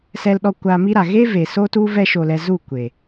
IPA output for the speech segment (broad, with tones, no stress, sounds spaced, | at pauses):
s ɛ˧ l ɗ ɔ˧ kʷ aː˧ m i˦ ɾ a˨ ɣ e˦ v e˨ s o˦ t u˦ v ɛ˦ ʃ o˧ l ɛ˧ z u˦˨ kʷ e˨